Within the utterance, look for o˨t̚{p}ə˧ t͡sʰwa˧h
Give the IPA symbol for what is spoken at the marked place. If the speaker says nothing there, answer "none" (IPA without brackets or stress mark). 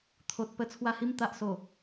p